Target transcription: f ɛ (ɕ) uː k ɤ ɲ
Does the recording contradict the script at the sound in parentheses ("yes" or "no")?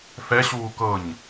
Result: no